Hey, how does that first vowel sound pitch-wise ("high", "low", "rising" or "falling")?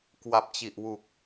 low